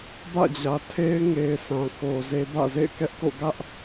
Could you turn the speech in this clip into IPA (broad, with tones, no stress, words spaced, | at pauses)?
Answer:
bä̰˦˨d͡ʑä˨ tʰe˦ɪ̯ŋe˨ɪ̯ sʰã˨ko˨ze˦ bä̰˦˨zḛ˦˨ɪ̯kɛ˦ʔko̰˦˨ ɡä˦ʔ